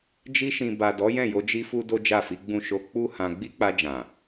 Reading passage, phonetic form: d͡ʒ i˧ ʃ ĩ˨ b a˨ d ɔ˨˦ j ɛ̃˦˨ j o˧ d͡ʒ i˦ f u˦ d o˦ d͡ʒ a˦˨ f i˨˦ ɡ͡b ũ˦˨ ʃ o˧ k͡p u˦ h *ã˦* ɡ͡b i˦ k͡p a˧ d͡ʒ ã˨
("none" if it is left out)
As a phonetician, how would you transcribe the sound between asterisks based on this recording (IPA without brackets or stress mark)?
ã˧